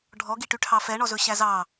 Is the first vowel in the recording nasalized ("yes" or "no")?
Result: no